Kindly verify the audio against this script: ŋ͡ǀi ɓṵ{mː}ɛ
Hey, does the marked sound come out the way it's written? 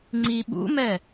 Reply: no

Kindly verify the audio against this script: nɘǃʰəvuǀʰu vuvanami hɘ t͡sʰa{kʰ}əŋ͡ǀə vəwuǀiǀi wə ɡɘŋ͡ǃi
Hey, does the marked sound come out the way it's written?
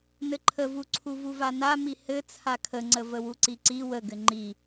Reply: yes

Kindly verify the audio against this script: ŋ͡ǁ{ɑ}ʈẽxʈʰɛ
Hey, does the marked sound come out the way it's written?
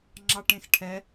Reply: yes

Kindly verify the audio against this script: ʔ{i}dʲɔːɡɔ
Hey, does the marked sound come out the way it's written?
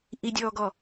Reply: yes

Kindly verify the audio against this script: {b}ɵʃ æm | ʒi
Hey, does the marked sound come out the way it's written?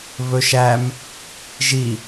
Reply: no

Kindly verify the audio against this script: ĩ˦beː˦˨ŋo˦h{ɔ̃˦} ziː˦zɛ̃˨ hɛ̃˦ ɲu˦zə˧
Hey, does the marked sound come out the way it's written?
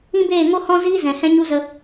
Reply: yes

